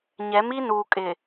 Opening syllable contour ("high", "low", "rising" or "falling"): rising